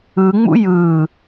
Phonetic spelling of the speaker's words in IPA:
ɯ ŋ͡m ṵ j ɯː

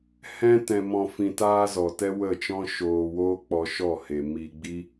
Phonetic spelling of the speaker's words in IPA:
h ɛ̃˦ t ɛ̃˨ m ɔ̃˨ f ĩ˨ t aː˧ z ɔ˨ t ɛ˦ w ə˦˨ t͡ʃ ɔ̃˦ ʃ oː˧ w oː˦ k͡p ɔ˧ ʃ ɔ˦˨ h e˨ m i˧ ɡ͡b i˦

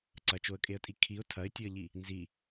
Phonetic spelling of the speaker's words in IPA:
ǀ ɐ t͡ʃ o ə̯ kʼ e ə̯ tʼ i kʰ i ʊ̯ tʰ ɐ ɪ̯ tʲ ɵ ə̯ ʎ i | n z i

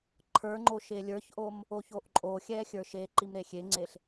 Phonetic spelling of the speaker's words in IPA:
ǃʰ ə˞ ŋ͡ǃ o ʃ e lʲ ə˞ ç ʔ o m | o ç o ʔ ǃʼ o xʲ ɛ xʲ ə˞ ʃ e ǃ i m ɾ e xʲ e ŋ͡ǀ e ɬ

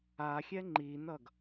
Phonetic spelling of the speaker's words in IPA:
a xʲ ɛ ŋ͡ǃ i n ʌ ɡ

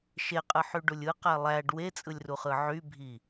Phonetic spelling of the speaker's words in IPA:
ʃ e qʼ ɯ ħ y ɖ u lʲ ɯ q æ lˠ æ ɖ w e t͡sʼ ɯ lʲ r u χ ɯ ʕ y bʱ i

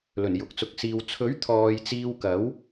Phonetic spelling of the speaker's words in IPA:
l ɵ˨˩ n j ʊ˨˥ k̚ t͡s ʊ˨˥ k̚ s iː˧ w t͡sʰ ɵ˨˥ ɥ t̪ʰ ɔː˧ j t͡s iː˥ w k ɐ˨˥ w

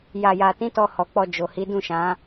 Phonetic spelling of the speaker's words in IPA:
j a˨ j a˨ t ĩ˨˦ t ɔ˧ h ɔ˨ k͡p ɔ˧ d͡ʒ o˨ h i˨˦ d ũ˦˨ ʃ ã˨˦

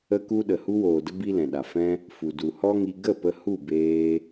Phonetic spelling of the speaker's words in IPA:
ə˧ k u˧ ɗ ə˨ h u˧ w oː˨ d ə˧ b i˦ l ɛ̃˨ ɗ a˨ f ɛ̃˧ | f u˨ d u˨ h ɔ˦ ŋ i˧ ɡ ə˦˨ p ə˧ h u˦˨ b eː˧

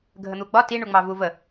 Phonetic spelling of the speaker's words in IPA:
ɡʱ ə n̪ u ɡ͡b ɒ t i ɳ u ŋ͡m ɑ v u v ə

